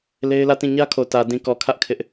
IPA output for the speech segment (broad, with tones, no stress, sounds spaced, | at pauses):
l e˦ ɪ̯ l ä˦˨ t ĩ˦˨ ɲ ä˦ kʰ o˨ t ä˨ d ĩ˨ k ɔ˨ kʰ ä˦ ʔ kʰ ɪ˦ ʔ